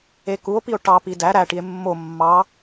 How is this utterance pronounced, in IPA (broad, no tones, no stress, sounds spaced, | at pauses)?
e k u o̯ p i o̯ ʈ ɑ p i d æ ɾ æ ʈ i e̯ mː o mː ɑ